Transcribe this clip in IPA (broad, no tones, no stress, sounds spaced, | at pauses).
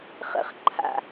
χ ə̰ χ ǃʰ a̰